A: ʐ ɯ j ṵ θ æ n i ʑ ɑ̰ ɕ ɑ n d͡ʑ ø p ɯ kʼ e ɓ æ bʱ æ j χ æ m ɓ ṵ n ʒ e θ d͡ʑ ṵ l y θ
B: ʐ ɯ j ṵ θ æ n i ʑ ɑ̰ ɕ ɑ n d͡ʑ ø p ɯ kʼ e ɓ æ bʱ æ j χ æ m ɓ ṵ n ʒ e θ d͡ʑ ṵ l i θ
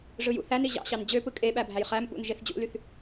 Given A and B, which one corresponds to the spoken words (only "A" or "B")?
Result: A